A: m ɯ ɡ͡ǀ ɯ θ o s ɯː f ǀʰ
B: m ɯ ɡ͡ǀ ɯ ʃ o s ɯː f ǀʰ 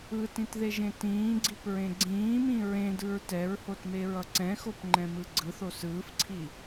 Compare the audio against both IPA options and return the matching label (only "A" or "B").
A